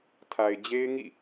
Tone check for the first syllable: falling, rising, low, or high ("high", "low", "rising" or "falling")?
low